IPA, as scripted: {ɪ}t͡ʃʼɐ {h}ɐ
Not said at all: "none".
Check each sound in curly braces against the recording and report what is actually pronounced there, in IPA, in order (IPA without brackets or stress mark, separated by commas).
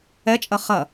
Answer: ɛ, χ